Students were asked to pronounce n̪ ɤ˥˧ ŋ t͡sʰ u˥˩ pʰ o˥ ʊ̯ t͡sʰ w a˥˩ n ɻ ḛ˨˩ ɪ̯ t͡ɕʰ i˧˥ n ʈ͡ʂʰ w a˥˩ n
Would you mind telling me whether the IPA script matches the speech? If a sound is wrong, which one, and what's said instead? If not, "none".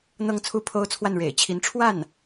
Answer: none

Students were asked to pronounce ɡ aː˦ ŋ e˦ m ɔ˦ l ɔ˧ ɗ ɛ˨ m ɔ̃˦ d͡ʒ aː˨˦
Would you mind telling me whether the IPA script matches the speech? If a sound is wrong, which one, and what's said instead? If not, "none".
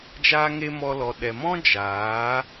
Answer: ɡ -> d͡ʒ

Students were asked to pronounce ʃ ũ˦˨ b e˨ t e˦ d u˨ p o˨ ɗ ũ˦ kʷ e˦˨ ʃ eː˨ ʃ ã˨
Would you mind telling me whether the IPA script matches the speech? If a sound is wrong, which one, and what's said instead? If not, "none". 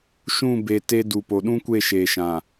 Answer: none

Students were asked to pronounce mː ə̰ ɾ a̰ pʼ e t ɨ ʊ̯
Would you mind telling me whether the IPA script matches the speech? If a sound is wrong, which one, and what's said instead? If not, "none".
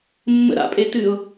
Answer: none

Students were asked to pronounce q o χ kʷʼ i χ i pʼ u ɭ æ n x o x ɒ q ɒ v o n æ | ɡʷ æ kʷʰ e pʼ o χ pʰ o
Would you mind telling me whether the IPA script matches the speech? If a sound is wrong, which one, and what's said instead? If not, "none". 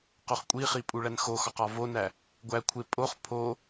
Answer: none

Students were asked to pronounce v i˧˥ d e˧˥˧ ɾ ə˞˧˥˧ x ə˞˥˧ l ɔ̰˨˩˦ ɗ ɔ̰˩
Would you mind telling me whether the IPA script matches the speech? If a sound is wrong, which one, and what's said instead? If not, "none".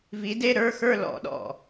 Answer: none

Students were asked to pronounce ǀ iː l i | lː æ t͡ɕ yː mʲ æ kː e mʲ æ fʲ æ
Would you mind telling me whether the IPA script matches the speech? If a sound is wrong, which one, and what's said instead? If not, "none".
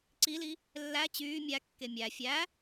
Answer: iː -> i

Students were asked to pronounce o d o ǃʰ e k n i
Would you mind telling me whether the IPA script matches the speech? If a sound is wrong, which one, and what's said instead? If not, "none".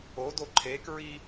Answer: n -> ɹ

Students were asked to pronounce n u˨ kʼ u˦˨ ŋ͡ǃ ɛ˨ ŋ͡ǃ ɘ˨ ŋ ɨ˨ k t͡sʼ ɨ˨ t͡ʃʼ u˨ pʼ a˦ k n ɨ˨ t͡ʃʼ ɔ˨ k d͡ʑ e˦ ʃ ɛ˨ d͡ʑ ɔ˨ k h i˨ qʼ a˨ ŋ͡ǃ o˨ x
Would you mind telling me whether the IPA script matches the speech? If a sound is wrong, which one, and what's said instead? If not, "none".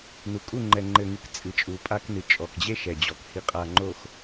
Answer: none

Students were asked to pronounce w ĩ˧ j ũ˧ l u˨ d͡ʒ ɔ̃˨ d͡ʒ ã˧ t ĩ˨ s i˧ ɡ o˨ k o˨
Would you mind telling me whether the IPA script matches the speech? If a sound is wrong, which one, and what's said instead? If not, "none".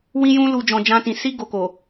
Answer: none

